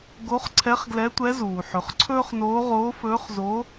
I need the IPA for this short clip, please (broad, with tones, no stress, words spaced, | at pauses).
ɡo˧˥χǀʰɛ˧˥χɡlɛ˧˥tʷɛ˧˥ zuː˩ħɵ˩˧χǀʰɵː˥χnoː˧˥ ʁoː˧˥fɵː˧˥χzoː˧˥